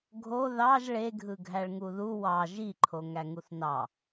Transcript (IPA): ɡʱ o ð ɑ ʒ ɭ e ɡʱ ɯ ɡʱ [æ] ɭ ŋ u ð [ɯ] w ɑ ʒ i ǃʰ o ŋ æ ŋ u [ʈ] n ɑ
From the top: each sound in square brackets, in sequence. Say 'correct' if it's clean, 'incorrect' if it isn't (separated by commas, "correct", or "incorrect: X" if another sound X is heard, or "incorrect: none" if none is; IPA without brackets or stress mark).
correct, incorrect: u, incorrect: θ